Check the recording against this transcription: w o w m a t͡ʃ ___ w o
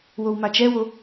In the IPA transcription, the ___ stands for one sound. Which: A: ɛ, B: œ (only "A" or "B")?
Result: A